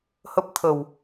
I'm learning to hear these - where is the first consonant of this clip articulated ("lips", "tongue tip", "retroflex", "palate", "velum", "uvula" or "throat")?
throat